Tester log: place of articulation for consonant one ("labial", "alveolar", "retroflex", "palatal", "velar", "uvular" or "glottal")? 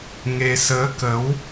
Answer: velar